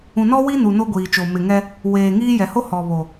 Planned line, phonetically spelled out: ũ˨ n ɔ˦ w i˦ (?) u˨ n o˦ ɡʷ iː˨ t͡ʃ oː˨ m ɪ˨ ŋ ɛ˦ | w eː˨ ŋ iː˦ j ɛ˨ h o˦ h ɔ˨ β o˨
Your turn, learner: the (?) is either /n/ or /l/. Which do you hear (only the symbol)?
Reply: n